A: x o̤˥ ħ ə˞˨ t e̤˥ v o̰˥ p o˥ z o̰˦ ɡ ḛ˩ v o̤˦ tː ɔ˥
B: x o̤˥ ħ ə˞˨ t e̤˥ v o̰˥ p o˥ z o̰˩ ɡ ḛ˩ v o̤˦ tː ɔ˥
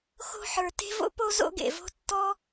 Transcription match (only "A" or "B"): A